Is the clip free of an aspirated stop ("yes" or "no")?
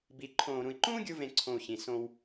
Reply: no